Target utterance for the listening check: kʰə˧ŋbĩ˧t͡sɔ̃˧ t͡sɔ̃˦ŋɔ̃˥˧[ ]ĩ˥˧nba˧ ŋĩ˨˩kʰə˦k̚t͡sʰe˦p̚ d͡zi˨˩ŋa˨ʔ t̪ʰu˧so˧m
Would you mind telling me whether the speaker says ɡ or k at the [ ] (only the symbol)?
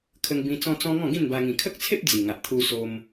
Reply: ɡ